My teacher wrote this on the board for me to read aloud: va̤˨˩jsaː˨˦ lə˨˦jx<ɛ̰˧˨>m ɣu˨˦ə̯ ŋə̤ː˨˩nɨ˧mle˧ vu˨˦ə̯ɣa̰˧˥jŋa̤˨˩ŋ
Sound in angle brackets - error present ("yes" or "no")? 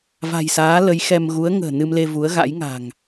yes